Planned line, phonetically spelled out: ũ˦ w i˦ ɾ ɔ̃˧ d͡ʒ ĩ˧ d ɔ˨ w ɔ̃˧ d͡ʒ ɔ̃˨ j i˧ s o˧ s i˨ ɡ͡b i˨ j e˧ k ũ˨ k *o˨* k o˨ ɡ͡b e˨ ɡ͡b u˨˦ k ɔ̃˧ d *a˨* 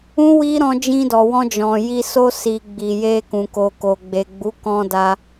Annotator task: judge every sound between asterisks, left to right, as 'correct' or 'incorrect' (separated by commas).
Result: correct, incorrect